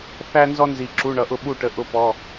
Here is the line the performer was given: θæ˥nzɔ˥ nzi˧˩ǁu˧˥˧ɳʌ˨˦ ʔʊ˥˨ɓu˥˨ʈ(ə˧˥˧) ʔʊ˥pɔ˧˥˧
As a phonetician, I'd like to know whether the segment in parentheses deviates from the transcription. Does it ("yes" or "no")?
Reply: no